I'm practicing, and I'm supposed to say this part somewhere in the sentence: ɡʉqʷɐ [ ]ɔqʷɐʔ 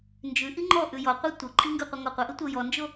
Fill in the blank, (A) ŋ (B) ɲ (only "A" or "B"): A